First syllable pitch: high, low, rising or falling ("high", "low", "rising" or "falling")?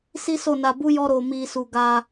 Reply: high